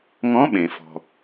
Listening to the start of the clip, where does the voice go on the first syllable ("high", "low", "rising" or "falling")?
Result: rising